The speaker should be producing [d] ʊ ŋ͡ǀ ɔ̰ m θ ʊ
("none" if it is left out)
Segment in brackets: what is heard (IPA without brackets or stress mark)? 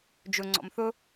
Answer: d͡ʒ